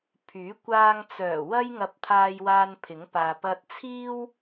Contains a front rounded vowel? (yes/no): yes